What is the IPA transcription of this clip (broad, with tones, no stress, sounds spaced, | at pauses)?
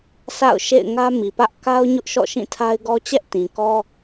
s a̰˦˨ ʊ̯ ʃ ḛ˦˨ ɪ̯ ŋ ä˦ m i˨ p ä˦ ʔ k a˦ ʊ̯ ɲ ʊ˦ ʔ ʃ ɔ̰˦˨ ʃ ĩ˦˨ tʰ a˦ ɪ̯ ɡ ɔ˦ t͡ɕ ɛ˦ ʔ t ĩ˨ k ɔ˦